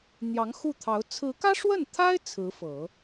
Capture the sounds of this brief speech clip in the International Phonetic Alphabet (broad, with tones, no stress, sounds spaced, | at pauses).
n̪ j ɑ˧˥ ŋ x u˥˩ t̪ʰ ɑ˧˥ ʊ̯ t͡sʰ ɹ̩˧˥ k ä˥ ʂ w ə˥˩ n t̪ʰ a˥ ɪ̯ t͡sʰ ɹ̩˧˥ f ɤ˨˩˦